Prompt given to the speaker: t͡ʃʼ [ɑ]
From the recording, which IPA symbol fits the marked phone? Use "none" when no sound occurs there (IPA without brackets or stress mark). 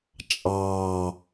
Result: ɑː